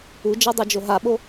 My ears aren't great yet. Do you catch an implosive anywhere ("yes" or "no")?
yes